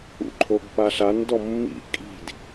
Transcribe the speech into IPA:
ṵ ǃʰ o ɡ p a ɬ a n d ɔ mː ḭ kʼ i̤ d

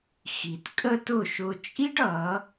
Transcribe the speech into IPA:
x i˩ t kʼ ə˥ t ʊ˥˩ ʃ ʊ˧ t͡ʃʼ i˥ ɖ ʌ˩˥

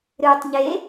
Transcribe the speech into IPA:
ɾ ɨː tˤ ɲ e

